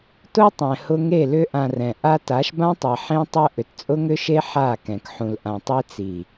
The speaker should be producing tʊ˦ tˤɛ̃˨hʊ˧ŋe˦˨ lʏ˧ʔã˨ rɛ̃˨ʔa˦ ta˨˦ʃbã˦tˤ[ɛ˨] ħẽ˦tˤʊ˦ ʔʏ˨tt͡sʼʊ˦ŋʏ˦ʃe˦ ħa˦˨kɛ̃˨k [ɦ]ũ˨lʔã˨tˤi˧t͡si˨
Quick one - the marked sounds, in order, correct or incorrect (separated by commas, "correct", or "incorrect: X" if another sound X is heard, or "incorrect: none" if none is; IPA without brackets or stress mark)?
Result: correct, incorrect: ħ